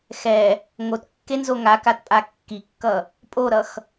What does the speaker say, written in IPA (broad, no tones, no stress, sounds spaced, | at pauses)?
x ɛ | ŋ o t kː e n z o ŋ a k a t pʼ a kː i kː ʌ | pʼ o ɾ ʌ x